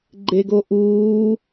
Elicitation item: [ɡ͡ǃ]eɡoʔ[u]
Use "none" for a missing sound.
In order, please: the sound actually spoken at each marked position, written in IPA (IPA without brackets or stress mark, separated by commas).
ɡ͡ǃ, uː